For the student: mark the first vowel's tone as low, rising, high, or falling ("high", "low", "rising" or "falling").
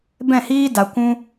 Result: falling